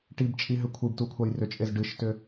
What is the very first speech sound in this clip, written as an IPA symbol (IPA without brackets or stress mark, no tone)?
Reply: ʈ